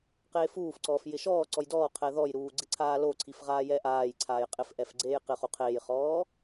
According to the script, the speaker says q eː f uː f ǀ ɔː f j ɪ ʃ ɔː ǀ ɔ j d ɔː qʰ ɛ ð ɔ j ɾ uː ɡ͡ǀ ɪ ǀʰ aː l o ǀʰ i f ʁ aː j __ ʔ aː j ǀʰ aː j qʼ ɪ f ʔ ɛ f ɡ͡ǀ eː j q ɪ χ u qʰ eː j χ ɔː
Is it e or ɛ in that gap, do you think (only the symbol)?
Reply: ɛ